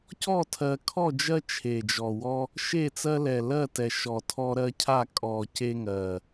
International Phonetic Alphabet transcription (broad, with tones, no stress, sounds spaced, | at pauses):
c ɔ˥˩ tʰ ɜ˨˩ kʰ ɔ˥˩ d͡ʒ ɜ˦ t͡ʃʰ e˨˩ d͡ʒ ɔ˨˩ w ɔ˦ | ʃ e˥˩ t͡s ɜ˦ l ɛ˨˩ l ɜ˥˩ t ɛ˨˩ ʃ ɔ˨˩ tʰ ɔ˦ ɾ ɜ˦ cʰ a˥˩ kʼ ɔ˨˩ c e˦ ŋ ɜ˨˩